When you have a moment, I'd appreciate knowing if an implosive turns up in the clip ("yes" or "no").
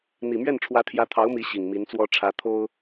no